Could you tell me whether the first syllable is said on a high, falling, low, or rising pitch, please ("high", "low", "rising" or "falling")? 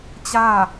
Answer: falling